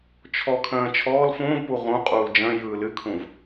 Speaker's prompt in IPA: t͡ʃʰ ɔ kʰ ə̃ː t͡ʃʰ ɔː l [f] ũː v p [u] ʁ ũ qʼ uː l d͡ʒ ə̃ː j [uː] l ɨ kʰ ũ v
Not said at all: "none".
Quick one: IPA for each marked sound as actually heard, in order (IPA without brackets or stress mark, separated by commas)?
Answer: f, u, ɯː